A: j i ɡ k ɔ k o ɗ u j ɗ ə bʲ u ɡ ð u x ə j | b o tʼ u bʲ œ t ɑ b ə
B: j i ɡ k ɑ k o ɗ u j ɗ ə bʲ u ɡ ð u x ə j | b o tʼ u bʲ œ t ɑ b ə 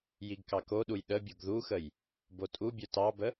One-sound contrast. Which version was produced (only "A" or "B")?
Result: B